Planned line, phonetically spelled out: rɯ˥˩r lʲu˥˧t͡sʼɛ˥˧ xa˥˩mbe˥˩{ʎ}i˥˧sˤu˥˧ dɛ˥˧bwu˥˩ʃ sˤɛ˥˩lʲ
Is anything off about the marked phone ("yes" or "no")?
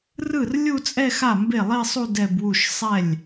yes